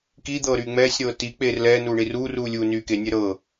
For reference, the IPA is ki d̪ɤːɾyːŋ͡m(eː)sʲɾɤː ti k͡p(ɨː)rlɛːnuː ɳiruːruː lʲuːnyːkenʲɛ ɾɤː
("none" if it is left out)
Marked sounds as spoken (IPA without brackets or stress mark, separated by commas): ɛː, eː